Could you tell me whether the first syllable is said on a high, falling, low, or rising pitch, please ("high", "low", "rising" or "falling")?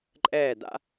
falling